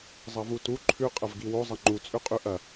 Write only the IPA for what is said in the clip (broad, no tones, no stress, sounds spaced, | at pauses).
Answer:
zˤ ɐ v u t u ǃʰ ʉ qʼ ɐ v ɡ i w o zˤ ɐ ŋ͡ǃ u t͡sʼ ʉ qʼ ʉ ʔ ɐ